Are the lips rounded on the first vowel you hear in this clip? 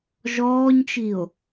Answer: yes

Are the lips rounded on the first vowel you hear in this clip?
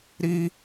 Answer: no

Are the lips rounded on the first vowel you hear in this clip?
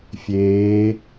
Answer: no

